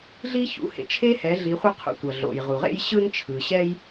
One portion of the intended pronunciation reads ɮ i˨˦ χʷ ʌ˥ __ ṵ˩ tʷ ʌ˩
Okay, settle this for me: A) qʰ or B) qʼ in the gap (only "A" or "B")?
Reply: A